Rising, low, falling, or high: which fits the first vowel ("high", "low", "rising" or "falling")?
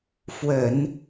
low